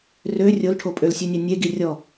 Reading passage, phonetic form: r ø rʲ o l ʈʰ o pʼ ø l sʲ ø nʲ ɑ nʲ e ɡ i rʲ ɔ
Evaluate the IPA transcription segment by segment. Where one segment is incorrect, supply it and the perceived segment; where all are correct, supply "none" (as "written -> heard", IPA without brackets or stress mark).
none